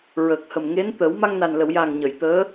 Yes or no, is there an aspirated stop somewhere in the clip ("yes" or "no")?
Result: no